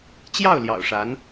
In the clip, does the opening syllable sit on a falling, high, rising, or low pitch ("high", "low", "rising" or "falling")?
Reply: falling